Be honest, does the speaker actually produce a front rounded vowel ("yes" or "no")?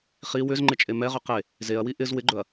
yes